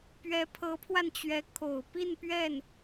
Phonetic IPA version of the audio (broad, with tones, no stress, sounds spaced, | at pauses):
p ɥ ɛ˧˥ pʰ ɤ˧˥ pʰ w a˧ n t͡ɕ ɥ ɛ˧˥ kʰ o˨˩ ʊ̯ p i˥˧ n p ɥ ɛ˥˩ n